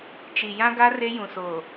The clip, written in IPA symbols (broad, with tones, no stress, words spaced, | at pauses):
t͡ʃi˨jã˦ɡa˦ re˦jũ˨soː˨